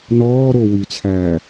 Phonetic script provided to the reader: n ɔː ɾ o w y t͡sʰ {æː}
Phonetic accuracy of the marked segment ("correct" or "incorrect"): correct